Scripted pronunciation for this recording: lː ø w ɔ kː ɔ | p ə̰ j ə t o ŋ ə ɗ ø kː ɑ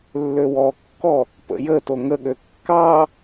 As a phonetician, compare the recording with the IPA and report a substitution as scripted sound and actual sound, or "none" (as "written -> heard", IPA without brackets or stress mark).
ɗ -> ɠ